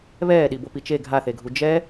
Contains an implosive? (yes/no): yes